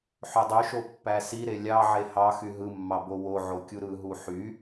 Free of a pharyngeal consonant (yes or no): no